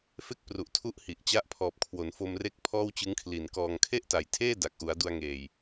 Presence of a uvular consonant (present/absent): absent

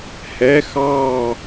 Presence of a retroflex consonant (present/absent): absent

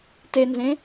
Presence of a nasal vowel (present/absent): present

